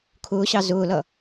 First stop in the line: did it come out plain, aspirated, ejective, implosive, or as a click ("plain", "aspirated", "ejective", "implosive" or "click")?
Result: aspirated